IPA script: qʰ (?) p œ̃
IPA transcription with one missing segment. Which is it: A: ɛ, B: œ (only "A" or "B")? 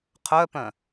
B